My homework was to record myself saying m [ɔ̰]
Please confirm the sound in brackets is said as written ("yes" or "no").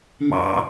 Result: no